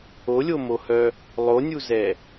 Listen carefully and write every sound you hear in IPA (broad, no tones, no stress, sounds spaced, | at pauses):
o lʲ o m o h œ | lˠ o nʲ u z ɛ